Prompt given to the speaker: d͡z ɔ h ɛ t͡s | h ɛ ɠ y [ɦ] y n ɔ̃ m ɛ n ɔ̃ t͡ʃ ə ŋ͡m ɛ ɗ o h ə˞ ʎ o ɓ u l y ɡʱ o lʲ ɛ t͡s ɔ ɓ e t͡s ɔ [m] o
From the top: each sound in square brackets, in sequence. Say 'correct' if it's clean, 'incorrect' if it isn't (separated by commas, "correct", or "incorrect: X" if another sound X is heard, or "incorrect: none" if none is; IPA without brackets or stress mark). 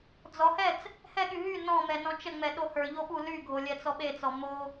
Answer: correct, correct